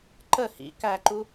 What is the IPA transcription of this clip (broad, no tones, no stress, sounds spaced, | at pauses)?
ǃ ə h ḭ k æ ǃ u